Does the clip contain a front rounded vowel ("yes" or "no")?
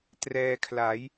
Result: no